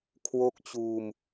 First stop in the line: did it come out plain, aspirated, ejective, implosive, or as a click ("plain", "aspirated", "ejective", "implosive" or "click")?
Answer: aspirated